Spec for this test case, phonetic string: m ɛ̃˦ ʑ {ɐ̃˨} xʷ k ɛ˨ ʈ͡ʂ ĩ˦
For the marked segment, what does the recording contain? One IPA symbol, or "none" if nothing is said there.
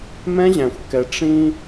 æ̃˨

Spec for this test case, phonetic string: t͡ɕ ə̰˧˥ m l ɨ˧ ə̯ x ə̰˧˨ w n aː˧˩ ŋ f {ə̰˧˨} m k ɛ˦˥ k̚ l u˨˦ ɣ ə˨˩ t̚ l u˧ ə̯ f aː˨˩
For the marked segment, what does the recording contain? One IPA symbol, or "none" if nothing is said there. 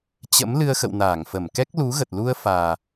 ə˧˩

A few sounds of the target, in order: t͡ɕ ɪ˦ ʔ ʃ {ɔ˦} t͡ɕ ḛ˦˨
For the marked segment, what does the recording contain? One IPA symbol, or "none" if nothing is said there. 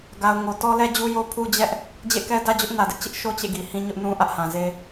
o˦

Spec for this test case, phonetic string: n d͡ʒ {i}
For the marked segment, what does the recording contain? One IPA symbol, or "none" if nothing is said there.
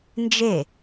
e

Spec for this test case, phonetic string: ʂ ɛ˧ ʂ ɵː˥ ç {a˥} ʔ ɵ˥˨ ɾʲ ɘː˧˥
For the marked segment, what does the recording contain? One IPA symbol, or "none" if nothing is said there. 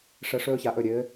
a˧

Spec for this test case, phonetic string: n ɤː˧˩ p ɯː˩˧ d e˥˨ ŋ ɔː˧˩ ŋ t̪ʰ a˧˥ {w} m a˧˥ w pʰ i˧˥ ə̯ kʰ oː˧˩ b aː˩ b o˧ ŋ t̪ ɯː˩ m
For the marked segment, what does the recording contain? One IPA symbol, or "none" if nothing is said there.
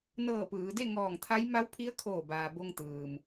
j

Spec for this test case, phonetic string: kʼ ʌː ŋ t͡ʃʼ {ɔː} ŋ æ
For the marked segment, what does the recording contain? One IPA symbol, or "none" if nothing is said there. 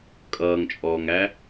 ɔː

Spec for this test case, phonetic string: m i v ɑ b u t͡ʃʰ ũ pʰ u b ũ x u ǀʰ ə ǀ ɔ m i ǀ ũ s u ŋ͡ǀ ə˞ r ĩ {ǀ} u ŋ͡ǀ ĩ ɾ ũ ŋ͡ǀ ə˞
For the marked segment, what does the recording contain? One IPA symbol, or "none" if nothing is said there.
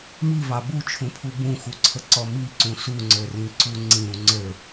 ǀ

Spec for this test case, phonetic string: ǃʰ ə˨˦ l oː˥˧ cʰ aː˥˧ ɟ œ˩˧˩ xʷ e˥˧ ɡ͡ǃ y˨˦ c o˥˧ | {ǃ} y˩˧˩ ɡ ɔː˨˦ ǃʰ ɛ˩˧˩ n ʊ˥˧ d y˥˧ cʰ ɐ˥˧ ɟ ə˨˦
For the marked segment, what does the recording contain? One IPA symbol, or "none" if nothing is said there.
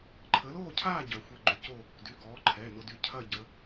d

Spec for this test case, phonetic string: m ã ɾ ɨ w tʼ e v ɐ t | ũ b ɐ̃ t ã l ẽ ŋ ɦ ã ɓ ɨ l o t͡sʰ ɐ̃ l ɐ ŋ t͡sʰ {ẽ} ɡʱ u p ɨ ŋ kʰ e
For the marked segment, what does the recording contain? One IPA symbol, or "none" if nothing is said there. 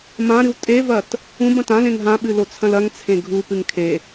ẽ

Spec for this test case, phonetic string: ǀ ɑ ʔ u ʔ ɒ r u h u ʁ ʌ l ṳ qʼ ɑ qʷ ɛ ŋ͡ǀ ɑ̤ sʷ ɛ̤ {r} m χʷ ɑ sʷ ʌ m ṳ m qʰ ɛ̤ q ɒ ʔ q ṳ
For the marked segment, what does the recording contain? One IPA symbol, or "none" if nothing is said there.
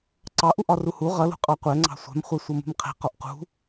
none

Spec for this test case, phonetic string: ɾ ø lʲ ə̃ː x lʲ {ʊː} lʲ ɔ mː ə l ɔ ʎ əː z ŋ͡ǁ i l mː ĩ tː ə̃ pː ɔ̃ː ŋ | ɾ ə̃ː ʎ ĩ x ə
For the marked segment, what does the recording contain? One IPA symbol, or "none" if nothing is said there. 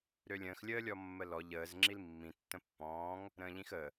əː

